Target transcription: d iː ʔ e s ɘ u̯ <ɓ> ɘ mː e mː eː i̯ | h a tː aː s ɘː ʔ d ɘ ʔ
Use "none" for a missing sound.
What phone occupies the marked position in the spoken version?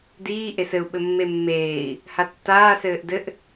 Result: ɓ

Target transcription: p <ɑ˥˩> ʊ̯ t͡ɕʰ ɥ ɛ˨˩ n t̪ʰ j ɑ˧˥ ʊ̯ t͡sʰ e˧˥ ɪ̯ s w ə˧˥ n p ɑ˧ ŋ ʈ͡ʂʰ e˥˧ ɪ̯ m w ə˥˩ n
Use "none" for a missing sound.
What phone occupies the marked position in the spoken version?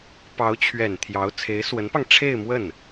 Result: ɑ˧˥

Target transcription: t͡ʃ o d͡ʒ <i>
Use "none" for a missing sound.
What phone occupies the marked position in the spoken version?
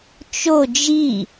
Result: i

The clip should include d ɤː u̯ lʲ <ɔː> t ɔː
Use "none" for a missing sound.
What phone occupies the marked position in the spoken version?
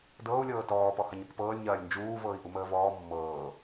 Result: ɤː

